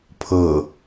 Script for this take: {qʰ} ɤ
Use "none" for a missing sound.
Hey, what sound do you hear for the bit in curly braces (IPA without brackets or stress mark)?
pʰ